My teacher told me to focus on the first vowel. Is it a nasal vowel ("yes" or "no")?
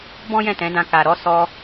yes